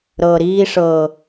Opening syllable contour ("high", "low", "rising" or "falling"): low